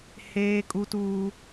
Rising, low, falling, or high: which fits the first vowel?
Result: high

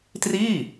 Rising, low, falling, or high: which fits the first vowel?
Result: falling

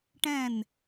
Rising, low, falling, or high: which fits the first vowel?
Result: falling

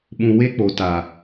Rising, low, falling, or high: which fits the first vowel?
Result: low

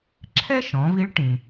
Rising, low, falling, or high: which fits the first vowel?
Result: high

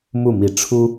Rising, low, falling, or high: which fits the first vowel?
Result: falling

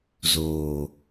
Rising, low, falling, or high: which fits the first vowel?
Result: low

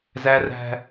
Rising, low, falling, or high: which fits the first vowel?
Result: high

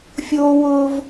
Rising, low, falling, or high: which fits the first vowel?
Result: high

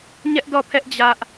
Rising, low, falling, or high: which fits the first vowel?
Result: high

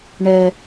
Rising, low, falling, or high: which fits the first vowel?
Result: high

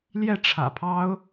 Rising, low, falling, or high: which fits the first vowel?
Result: falling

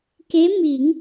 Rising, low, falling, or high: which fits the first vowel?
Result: rising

